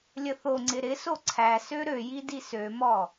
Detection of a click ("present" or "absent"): present